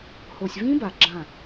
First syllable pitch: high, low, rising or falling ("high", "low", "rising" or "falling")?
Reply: low